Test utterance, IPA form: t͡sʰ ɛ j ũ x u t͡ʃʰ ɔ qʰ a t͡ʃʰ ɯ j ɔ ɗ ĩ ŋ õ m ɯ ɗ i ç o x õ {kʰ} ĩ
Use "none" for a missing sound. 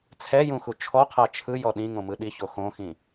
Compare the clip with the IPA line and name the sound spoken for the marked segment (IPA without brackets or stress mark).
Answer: x